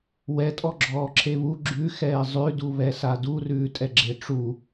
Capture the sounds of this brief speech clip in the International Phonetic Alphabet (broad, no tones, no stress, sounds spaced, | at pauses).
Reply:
w ɛ tʼ ɔ ɡ͡ǁ ɔː ǁʰ e β u ɡ͡ǁ ʉ x ɛː zˤ ʉ d u β ɛ s a d u r ʉː tʼ ɛ ɡ͡ǁ e ʈ͡ʂ u